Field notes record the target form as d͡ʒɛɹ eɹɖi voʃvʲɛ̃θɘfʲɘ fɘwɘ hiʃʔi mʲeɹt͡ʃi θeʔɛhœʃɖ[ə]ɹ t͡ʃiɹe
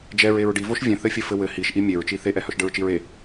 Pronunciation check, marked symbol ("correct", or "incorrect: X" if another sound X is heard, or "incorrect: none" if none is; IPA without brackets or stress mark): correct